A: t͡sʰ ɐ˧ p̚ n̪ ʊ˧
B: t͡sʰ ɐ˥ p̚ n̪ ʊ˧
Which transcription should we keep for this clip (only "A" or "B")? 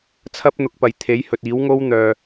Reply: B